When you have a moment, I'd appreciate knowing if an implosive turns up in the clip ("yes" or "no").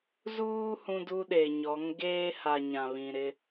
yes